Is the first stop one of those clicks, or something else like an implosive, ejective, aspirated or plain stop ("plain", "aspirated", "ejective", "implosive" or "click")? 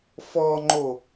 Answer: click